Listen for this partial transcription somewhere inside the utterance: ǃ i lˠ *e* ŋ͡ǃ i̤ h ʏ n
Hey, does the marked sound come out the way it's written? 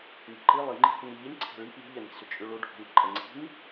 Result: no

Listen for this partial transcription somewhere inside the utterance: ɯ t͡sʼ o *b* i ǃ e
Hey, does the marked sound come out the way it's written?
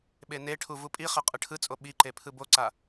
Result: no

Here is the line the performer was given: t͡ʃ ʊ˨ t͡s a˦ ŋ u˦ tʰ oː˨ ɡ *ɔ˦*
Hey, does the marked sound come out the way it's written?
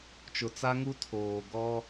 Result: yes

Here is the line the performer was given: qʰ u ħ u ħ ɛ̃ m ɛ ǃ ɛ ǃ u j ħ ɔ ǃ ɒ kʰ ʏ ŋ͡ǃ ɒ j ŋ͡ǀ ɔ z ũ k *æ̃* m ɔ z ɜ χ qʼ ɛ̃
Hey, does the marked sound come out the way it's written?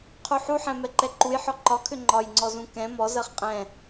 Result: no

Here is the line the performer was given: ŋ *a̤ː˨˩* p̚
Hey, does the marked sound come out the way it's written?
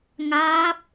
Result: no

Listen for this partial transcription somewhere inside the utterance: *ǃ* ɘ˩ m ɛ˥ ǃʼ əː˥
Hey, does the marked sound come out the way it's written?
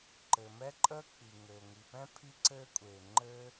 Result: yes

